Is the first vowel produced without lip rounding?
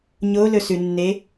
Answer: no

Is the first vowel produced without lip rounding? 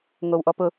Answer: no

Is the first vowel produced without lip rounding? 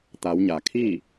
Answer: yes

